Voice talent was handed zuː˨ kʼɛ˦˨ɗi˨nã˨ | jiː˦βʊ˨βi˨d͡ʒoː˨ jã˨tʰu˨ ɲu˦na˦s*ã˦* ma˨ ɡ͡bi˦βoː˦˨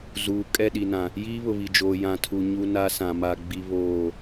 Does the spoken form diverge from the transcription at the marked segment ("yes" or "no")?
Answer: yes